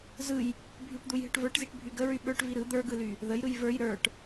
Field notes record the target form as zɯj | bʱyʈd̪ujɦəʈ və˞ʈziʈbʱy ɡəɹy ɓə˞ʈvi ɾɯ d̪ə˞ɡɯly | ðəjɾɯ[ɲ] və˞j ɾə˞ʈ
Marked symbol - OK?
no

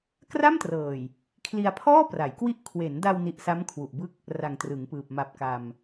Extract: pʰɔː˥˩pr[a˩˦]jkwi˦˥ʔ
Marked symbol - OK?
yes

